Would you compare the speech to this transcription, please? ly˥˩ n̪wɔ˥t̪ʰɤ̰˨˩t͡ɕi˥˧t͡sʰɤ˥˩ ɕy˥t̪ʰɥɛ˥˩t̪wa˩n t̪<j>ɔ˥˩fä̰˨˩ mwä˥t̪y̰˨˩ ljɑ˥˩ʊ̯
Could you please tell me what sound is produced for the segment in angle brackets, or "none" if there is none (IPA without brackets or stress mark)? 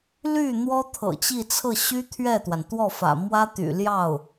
w